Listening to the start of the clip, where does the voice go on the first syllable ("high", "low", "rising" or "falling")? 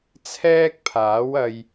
high